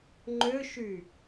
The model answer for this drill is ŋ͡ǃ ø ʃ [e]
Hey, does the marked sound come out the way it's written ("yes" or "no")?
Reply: no